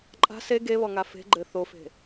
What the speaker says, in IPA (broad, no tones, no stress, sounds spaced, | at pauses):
ǃʼ a̤ s e ɡ e β ɔ ŋ a f e̤ ɡ͡ǃ ɘ θ o f e̤